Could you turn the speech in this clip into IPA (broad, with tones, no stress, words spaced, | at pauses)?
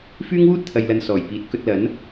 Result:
fyː˥ŋwuː˥t̚t̪ʰɐ˨jlɐ˨n sɔː˨˩jpiː˨˥t̚ kɵ˧t̚lɐ˨˥n